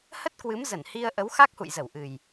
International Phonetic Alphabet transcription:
h ə˦˥ t̚ k w ɨ˨˦ m z ə˧˩ n h i˧ ə̯ ʔ ə˨˦ w x a˦˥ k̚ h ṵ˧˨ j z ə˧˩ w ʔ ɨ˨˩ j

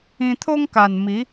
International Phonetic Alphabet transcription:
ĩ˧ t̪ʰ o˦ ŋ k a˨˩ n m i˨˦

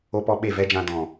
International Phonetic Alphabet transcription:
o˦ p ɔ˦ ɓ e˦˨ v ɛ˦ d͡ʒ ã˧ d ɔ̃˨

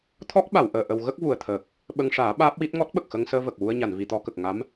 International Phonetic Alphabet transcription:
t̪ʰ ɔ˦˥ k̚ ɓ a˨˩˨ w ʔ əː˨˩˨ ʔ ə˧ w ɣ ə˦˥ k̚ v u˨˩ ə̯ t̪ʰ əː˨˩ k̚ | ɓ ə˧ ŋ ʂ aː˨˩˦ ɓ aː˦˥ p̚ w i˦˥ t̚ ŋ ɔ˦˥ t̚ ɓ ə˨˩ k̚ x ə˧ ŋ s əː˧ v ə˨˩ k̚ w u˧ ə̯ ɲ a˨˩˨ n v i˨˩˨ t̪ ɔ˧ k ə˨˩ k̚ ŋ a˧˥ m

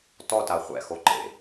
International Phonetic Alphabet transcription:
t ɔ t a χʷ ɛ̰ x o ǃ ḛ

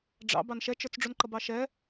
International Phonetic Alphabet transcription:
ɖ͡ʐ ɑ̰ b ɑ n ʃ ɛ t͡ʃ ə˞ t͡s ɖ͡ʐ u n ǃ ʌ b ɑ ʃ ɛ

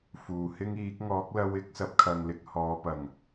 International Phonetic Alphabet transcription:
f uː˨˩ h ɪ˥ ŋ iː˨˥ k̚ ŋ ɔː˨˥ k̚ l ɐ˧ w ɪ˨˥ k̚ s ɐ˨˥ p̚ kʰ ɐ˨ ŋ l ɪ˨ k̚ h ɔː˨˧ p ɐ˨˩ ŋ

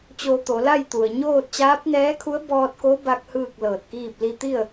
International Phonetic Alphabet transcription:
t͡ɕ o˧ t̪ o˩˧ l a˥˨ j t̪ u˩ ə̯ ɲ oː˥˨ t̚ t͡ɕ aː˧˥ p̚ n ɛː˧˥ kʰ u˧˥ ə̯ b ɔː˧ t̚ k o˧˥ b a˧ k̚ h ɯː˥˨ k̚ l ɤː˧˩ t̚ k iː˥˨ p̚ l i˧ t̪ i˥˨ ə̯

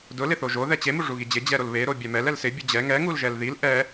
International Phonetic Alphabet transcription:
d ʊ l ɪ θ o ʒ o ð ɛ t͡ɕ e m u ʐ u ɣ i d͡ʑ ɪ d͡ʑ ɛ ɾ o l β e ɾ o bʲ ɛ m ɛ l ɛ l s ɪ bʲ u d͡ʑ ɛ ŋ ɛ ŋ u l ʒ ɛ l ð i l ʔ ɛ

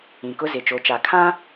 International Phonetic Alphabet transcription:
ĩ˨ k ʊ˦ z ɪ˨ t͡ʃ o˨ t͡ʃ a˨ kʰ ã˦

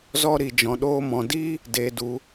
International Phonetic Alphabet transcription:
z ɔ˦ ɾ i˧ d͡ʒ ɔ̃˧ ɗ oː˦ m ɔ̃˧ d i˦ | d eː˧ d u˧

